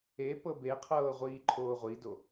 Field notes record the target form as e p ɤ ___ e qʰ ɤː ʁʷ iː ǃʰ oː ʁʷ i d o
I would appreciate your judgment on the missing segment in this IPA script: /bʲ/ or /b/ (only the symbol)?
b